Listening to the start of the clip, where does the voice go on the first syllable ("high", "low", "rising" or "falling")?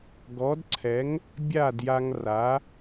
rising